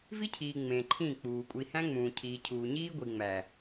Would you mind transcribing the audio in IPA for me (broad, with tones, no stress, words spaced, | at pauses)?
vi˦cʰiː˨ ŋ͡mẽ˨ǃʰĩː˦˨k͡puː˨ kʷʼi˨hæ̃˦ŋ͡mũː˨cʰiː˨ cʰuː˨ɲiː˦ɡʷi˨ŋ͡mæ˨